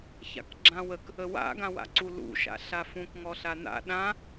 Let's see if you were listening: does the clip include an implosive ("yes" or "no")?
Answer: yes